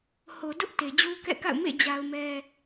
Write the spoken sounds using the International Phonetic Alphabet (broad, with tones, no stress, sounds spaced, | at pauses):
h o˨ d ʊ˦ ʔ t e˨ d͡ʑ u˦ k ɛ̰˦˨ k a̰˦˨ ʊ̯ m ḛ˦˨ d͡ʑ a˦ ʊ̯ m ɛ˦